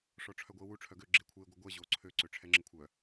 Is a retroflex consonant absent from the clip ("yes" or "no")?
no